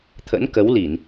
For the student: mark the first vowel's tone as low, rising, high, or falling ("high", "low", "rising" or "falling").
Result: rising